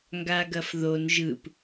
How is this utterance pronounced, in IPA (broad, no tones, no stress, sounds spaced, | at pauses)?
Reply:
ŋ ɡ a ɡ ɐ f ð o n ʒ ɯ p